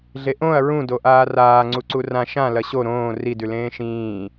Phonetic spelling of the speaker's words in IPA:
ɮeʔõɐ̯ ɹũ doʔaːraː ŋ͡ǀuǀurã ʃã lɐɕo ɾõː ridʉ lẽːʃĩː

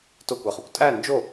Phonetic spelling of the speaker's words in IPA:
tokʷæχukʷ tʼæ nd͡ʒo

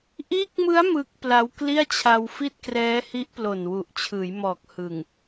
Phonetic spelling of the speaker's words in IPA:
ʔiː˦˥k̚mɯ˦˥a̯ mɯ˦˥k̚pla˦˥w kli˥˩a̯t͡ɕʰa˧w fi˥˩t̚krɛː˦˥hi˦˥ʔ plo˨˩nwu˨˩ʔt͡ɕʰɯː˩˦jmɔː˨˩k̚ hɯ˨˩ŋ

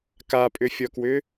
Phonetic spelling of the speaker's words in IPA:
kapʼʏfʲɔkwʏ

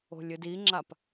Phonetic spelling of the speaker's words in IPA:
o̤lʲɨdiŋ͡ǁap

